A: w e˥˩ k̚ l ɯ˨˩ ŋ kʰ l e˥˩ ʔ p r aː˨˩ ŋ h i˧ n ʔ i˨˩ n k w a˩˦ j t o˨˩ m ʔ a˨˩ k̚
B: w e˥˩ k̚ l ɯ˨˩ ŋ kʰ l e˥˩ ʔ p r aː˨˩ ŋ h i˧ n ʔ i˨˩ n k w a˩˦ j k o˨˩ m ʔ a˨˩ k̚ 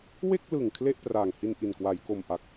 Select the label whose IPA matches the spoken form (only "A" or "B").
B